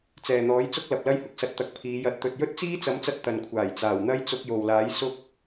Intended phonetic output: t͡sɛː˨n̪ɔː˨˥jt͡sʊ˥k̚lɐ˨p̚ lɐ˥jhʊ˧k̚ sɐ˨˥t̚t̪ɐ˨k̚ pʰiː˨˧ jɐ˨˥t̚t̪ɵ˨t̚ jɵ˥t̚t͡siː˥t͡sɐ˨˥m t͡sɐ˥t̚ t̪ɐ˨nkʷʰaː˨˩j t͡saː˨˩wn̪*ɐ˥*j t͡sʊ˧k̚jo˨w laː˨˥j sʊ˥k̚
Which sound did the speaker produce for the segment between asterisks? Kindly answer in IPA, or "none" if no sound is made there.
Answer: ɐ˥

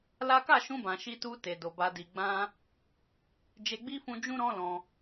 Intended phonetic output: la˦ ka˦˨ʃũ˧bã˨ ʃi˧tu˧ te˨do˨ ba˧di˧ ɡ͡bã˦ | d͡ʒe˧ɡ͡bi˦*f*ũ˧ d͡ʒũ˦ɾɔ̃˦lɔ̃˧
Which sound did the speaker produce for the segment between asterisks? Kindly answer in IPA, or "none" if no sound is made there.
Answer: f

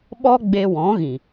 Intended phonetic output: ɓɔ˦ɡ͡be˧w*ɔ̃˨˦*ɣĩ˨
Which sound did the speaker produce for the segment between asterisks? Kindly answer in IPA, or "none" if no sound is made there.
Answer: ɔ̃˨˦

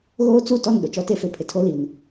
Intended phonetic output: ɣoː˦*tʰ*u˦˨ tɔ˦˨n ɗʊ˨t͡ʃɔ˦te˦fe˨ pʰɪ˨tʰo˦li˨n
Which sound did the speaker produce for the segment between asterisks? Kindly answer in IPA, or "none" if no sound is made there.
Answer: t͡s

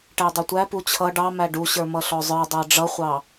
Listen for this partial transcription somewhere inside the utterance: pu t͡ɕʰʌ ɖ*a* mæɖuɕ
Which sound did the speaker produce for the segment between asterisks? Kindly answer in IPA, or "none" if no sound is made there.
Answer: ɑ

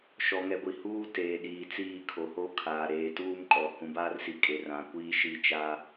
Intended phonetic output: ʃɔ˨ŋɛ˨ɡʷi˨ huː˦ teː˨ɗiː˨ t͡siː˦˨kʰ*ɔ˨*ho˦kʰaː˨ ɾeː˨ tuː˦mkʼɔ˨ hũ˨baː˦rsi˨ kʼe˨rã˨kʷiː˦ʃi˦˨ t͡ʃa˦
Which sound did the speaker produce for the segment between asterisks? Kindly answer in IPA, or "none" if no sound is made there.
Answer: o˨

